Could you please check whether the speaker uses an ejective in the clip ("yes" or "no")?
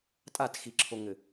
yes